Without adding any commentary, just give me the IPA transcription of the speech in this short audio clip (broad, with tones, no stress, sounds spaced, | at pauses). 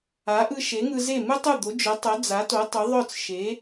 a˩˥ ʔ ɯ˧ ʃ e˩˥ ŋ ɯ˧ z e˥˩ m ɯ˥ tˤ u˥˩ d̪ o˩˥ d͡ʒ œ˩˥ tˤ œ˩˥ d͡z a˩˥ t o˩˥ tˤ u˩˥ ðˤ œ˥˩ t͡s ʃ e˩˥